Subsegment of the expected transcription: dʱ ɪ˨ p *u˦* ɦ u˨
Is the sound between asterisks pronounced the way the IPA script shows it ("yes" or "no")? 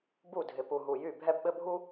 no